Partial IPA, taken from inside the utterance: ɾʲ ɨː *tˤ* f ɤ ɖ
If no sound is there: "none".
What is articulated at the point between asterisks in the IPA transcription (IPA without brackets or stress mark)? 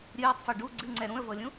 tˤ